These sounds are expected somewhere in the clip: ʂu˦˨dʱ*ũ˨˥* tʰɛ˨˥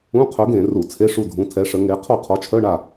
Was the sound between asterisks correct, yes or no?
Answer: yes